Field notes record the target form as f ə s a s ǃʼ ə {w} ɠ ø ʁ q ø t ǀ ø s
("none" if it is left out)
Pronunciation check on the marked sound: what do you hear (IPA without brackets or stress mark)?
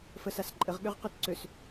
ʁ